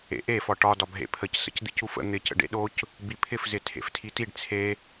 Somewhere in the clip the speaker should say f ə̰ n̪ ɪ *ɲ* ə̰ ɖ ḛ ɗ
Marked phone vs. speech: incorrect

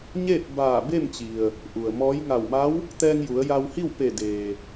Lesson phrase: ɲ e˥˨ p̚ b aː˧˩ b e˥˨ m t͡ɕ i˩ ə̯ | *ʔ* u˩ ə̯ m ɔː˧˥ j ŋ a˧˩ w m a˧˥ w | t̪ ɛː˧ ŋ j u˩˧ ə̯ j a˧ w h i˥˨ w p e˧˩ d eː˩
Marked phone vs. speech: correct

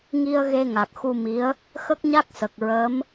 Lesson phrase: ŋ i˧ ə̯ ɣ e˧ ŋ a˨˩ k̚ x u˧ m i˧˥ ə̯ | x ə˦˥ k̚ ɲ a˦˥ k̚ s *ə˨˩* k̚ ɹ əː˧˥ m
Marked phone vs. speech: correct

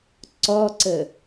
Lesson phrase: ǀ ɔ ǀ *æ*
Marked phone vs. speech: incorrect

